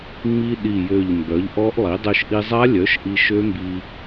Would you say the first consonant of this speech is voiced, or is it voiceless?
voiced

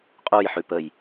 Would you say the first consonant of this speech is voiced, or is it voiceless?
voiceless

